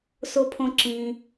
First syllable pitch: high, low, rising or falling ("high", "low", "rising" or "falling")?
low